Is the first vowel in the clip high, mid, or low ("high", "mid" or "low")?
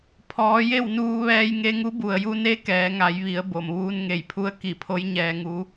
mid